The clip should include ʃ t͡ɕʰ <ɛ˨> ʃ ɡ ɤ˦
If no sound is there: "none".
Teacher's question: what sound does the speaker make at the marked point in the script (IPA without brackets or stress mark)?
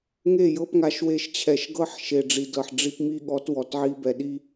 ɛ˨